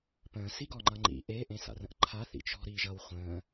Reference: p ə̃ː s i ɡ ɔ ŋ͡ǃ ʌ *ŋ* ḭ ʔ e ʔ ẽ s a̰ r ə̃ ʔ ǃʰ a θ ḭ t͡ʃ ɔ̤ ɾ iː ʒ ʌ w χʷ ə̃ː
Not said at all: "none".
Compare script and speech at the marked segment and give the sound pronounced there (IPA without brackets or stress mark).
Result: ŋ͡ǃ